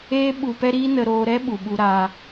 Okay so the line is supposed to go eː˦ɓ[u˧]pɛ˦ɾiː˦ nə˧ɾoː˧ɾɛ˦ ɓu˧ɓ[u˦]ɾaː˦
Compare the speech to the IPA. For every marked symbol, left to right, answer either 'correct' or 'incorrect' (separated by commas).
correct, correct